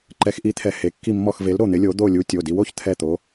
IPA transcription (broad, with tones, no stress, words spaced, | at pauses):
ǃɛ˨˥xʔi˨˥t̪ʰɛ˨˥he˩˧˩ kːi˦˨mːɔ˦˨xve˨˥l ɾo˦˨n̪ɪ˨˥lʲo˨˥ d̪o˦˨lʲu˨˥ tʲo˩˧˩di˨˥wo˨˥ç t̪ʰɛ˦˨t̪o˨˥